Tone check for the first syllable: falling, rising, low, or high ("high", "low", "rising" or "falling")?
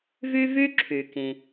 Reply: high